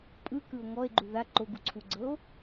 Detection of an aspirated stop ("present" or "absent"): present